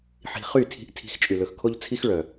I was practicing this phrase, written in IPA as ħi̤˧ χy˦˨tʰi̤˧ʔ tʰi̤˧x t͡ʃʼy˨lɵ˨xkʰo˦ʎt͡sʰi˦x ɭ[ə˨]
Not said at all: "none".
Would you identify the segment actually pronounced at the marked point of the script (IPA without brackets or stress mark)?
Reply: œ˨